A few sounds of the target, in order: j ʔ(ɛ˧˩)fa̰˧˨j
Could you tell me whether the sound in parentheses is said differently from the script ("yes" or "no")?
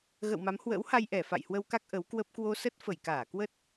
no